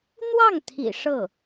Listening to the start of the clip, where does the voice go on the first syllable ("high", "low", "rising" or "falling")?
falling